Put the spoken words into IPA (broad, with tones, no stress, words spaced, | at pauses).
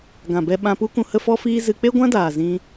ɡã˨bɛ˧ ɓã˧pu˦kũ˧ hə˦fɔ˦fiː˦ zɨ˧k͡pe˦ɡʷã˦daː˨ zĩ˧